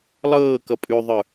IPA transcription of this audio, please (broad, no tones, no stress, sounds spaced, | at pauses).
lˠ ɤː k ʌ pʼ ʉ ðˤ ə˞